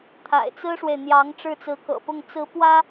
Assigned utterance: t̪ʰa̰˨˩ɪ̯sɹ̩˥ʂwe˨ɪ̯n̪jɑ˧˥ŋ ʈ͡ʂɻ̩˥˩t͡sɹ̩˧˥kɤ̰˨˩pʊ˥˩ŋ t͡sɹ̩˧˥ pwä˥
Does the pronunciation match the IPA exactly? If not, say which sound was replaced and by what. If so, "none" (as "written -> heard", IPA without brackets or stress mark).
s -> t͡s